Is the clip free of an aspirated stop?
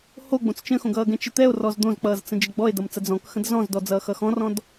yes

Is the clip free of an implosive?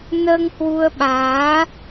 no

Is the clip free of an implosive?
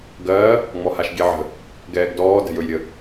yes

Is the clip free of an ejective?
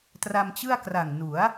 yes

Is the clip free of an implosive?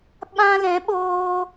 no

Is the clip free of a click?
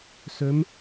yes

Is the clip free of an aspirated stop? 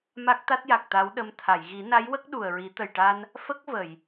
no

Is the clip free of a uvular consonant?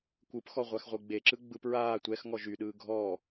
no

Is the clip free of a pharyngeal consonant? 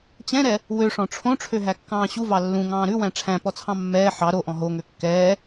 no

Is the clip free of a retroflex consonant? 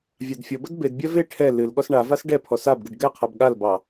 no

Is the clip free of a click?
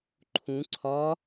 no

